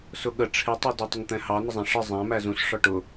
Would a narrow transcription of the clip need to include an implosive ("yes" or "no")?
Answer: yes